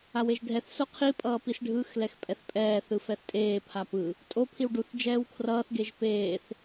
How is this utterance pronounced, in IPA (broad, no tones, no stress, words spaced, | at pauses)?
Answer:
aweʒdʱɛθ soqʰi pʼʌːpisɖʱɯx lɛxpʼɛθpʼɛː θɯfɛθtʼeː pʰapɯ | tʼo pʰiwɖuθ d͡ʒɛːwkʰrʌːθ ɡeʒpeːθ